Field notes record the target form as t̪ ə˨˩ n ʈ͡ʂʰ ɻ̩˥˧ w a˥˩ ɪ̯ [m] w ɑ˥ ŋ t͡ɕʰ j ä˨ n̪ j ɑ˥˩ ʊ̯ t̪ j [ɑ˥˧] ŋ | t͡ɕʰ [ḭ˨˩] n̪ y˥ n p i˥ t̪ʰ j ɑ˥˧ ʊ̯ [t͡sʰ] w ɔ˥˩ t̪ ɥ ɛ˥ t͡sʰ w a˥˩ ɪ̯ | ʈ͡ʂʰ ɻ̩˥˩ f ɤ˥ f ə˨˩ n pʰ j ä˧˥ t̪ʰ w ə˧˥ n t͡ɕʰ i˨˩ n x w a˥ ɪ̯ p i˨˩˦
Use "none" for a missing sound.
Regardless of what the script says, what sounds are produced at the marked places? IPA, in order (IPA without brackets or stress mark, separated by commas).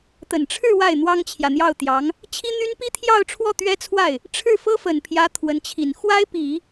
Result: n̪, ɑ˧˥, i˥, ʈ͡ʂʰ